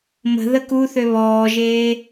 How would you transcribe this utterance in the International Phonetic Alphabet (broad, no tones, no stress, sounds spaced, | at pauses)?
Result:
m ə̤ ð ə k u θ ø β ɔː ʒ eː